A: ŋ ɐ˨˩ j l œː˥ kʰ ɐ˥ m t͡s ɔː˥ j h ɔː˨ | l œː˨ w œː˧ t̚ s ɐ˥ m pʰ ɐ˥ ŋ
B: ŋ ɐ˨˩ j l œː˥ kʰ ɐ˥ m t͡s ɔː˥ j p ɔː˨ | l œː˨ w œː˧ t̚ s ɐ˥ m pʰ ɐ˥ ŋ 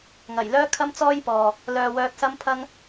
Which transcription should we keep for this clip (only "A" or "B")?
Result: B